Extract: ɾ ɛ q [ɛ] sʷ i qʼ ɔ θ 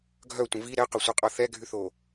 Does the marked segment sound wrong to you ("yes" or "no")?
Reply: yes